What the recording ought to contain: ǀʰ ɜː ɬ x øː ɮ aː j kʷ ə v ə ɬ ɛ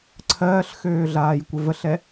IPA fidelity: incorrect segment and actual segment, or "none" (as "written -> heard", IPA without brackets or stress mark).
none